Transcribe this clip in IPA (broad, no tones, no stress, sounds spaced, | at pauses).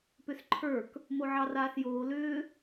p ʏ s ǃʰ ə˞ k | m o ʕ ɑ r aː s j oː l ʏː